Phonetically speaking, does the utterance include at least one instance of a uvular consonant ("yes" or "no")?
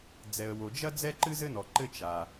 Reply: no